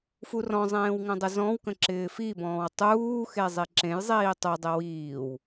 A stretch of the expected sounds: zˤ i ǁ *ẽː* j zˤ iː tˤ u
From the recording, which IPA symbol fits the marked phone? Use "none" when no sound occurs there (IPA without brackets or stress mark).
ẽ